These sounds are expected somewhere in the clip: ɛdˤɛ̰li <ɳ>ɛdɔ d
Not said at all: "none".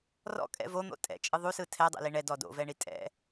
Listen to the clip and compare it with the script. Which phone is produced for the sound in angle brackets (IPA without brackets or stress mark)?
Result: ɳ